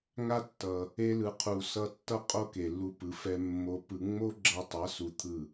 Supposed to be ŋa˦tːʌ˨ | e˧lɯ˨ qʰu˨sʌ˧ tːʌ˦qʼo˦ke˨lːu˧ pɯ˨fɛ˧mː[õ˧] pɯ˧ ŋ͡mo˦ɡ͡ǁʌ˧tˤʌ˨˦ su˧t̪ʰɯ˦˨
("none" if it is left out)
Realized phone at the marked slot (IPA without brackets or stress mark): o˧